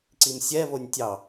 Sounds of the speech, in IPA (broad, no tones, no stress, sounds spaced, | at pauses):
ǀ i m sʲ ɛ β o nʲ tʲ ɑ